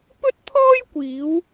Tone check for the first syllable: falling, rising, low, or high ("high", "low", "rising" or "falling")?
high